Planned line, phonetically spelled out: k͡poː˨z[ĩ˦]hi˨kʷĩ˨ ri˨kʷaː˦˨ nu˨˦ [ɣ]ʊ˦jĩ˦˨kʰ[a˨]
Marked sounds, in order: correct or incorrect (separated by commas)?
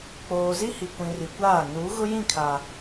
incorrect, correct, correct